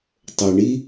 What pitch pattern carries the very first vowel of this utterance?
low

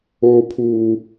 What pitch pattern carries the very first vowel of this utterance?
high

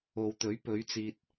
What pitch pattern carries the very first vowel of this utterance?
low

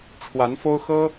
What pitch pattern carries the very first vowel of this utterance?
rising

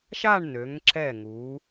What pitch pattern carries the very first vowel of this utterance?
falling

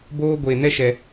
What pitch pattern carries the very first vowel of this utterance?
high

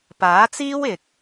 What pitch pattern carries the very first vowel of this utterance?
rising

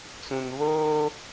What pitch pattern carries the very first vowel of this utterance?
low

